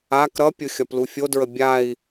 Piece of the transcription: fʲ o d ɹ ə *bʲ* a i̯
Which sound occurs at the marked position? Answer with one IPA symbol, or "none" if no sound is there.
bʲ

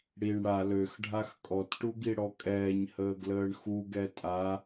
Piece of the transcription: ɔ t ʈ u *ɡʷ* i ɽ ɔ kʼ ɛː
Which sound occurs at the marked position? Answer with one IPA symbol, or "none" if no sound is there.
ɡ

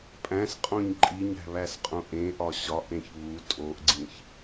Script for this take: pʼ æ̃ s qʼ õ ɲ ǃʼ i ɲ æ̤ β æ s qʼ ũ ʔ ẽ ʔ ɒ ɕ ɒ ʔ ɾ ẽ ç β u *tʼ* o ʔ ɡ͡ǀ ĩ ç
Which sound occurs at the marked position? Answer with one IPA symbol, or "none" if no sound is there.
tʼ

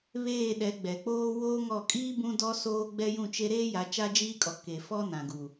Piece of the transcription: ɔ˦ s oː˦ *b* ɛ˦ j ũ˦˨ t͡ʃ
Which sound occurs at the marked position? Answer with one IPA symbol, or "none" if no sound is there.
ɡ͡b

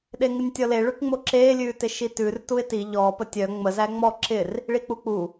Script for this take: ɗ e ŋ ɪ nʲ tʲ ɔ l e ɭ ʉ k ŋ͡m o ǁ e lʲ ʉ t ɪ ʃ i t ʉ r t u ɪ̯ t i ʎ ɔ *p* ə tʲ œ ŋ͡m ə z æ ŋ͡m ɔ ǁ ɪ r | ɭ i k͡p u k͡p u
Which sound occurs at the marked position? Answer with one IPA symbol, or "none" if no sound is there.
p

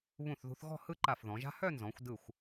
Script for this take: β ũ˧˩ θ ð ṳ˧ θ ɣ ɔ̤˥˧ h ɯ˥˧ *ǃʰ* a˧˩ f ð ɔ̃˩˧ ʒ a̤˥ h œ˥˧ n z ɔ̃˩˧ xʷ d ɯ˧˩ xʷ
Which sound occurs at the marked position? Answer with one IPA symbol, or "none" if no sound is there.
ǃ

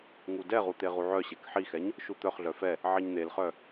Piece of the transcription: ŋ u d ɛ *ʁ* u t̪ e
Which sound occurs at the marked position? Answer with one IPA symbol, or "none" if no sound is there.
ʁ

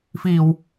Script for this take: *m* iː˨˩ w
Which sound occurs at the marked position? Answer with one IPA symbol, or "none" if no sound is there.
f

